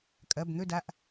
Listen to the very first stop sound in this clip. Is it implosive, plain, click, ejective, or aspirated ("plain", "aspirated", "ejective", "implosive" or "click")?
ejective